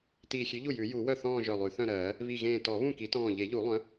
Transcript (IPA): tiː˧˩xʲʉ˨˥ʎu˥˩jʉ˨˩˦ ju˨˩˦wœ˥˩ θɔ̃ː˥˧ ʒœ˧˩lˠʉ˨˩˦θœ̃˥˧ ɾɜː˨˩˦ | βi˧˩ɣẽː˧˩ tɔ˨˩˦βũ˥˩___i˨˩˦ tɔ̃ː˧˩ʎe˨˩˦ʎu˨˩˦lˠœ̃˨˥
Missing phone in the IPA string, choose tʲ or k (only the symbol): k